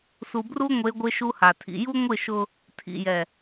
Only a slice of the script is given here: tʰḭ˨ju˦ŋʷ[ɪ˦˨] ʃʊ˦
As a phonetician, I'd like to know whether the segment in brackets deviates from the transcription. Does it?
no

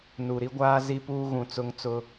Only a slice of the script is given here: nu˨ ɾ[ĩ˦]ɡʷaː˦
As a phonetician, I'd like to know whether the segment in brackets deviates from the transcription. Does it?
yes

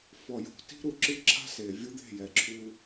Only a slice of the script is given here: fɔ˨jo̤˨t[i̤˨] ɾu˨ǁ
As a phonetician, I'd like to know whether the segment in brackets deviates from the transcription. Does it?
yes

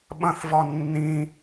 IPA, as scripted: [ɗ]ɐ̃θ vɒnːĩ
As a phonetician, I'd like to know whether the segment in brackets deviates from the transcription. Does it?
yes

